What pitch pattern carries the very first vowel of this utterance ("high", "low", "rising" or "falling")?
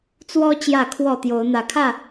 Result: high